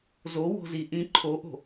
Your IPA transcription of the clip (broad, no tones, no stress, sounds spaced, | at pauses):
z o w o̤ z i ʔ ĩ ǃʰ o ʔ o̤